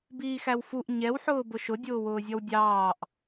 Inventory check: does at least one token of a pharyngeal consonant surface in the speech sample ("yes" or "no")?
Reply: yes